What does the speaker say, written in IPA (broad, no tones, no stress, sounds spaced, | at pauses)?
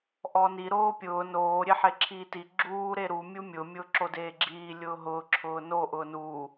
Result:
ʔ ɔ n i ɾ oː pʲ ʊː n oː ɾʲ e ħ e ǁʰ iː t i ɡ͡ǁ uː ɾ e ɾ u mʲ u mʲ ʊ mʲ ʊː ǁ o d eː ɡ͡ǁ iː lʲ ʊː ɦ ʊː ǁʰ ʊː n o ʔ ʊː n uː